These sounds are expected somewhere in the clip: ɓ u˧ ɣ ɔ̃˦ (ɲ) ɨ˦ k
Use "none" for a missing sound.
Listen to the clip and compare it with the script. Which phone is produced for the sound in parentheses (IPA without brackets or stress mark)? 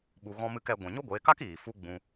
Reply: m